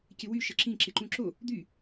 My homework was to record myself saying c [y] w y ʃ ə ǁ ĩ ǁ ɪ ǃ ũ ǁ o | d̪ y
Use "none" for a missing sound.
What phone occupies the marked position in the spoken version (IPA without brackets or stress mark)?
ɪ